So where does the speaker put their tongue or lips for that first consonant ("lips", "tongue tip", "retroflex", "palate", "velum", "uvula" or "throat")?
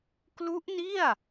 velum